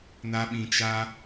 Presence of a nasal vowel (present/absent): present